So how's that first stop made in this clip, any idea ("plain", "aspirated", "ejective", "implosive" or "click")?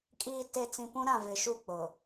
ejective